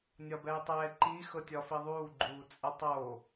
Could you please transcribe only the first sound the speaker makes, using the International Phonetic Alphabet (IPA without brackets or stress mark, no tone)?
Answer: nʲ